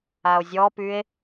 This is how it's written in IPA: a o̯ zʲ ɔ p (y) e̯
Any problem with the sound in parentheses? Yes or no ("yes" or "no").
no